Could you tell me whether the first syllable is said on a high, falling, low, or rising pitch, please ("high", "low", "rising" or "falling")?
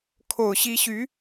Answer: low